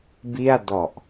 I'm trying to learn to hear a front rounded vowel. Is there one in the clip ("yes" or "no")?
no